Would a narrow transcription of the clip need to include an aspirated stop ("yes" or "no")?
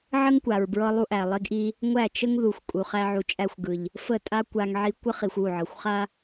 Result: no